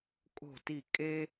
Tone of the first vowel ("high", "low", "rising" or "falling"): falling